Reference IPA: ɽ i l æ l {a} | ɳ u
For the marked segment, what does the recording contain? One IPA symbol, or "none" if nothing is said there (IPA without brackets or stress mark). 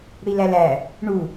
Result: æ